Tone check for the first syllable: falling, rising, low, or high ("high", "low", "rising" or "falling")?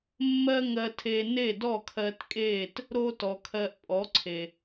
high